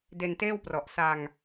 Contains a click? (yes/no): no